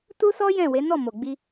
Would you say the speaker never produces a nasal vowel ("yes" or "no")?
no